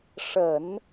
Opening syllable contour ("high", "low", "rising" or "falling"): low